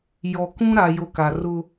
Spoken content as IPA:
jɔ˨kũ˦ ɾa˨jo˨ ka˨ rʊ˦

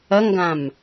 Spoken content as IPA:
ɐŋɡãm

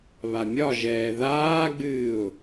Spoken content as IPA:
βamʲɒʒɛː ðaːɡ͡bɨːʊ̯

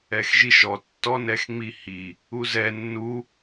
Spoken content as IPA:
ɛxʒiʃɔ tːɔnɛxŋ͡mihi | uzɛ nːu

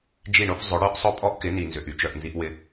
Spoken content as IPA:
d͡ʒi˦˨ɳo˦f zˤʊ˨˦ ɽœ˦ʔsˤʊ˦ pʼɔ˦ʔkɪ˨˦ ni˨nzʏ˨ʔy˦t͡ʃœ˨ʔ nzi˦ʔwɪ˦

